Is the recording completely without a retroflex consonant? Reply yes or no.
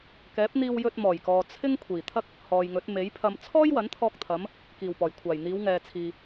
yes